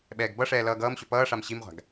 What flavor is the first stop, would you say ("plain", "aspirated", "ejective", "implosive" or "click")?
implosive